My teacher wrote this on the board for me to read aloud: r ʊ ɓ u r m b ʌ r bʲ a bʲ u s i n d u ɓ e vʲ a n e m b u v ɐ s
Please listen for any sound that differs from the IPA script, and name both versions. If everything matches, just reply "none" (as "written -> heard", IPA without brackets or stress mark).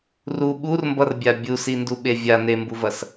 ʊ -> u